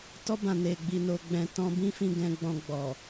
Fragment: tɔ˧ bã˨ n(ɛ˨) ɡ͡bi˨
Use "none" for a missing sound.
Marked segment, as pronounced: e˨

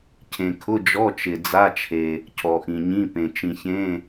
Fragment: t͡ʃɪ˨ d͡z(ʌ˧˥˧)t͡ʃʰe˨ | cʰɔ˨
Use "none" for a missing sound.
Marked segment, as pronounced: a˧˥˧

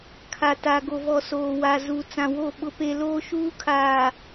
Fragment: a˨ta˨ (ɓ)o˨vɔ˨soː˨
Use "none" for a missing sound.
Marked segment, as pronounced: ɡ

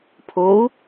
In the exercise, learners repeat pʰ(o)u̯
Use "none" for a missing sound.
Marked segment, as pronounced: o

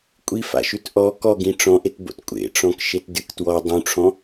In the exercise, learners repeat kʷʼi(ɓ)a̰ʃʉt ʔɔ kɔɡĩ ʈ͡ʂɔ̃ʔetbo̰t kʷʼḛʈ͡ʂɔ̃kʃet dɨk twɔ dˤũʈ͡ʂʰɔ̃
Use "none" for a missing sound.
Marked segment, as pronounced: f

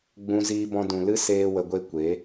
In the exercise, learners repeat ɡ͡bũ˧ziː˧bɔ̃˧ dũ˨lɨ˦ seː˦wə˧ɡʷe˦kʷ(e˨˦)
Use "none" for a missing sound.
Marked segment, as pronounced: e˨˦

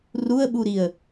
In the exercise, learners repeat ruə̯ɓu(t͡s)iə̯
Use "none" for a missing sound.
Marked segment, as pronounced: ɾ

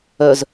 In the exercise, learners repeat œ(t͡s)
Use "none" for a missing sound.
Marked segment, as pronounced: z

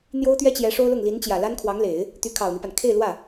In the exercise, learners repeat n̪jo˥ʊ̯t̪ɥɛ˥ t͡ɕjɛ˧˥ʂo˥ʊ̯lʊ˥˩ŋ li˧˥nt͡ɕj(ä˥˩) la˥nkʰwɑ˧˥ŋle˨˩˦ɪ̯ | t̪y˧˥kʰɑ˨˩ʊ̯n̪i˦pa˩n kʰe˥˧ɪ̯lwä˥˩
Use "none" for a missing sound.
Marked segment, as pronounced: ä˨˩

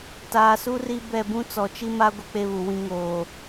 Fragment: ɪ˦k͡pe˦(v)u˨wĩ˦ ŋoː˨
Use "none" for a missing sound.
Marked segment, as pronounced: β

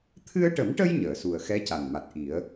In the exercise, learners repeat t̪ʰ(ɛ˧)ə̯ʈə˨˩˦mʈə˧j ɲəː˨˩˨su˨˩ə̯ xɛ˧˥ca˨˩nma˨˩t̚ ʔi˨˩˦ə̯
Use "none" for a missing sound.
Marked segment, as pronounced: ɨ˧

